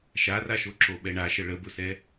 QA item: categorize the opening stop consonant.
click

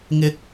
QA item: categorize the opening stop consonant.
plain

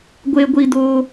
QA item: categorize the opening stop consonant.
plain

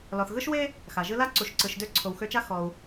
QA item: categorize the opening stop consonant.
click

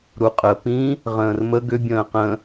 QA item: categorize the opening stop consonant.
ejective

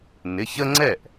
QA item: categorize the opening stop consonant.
click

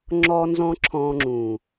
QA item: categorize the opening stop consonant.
click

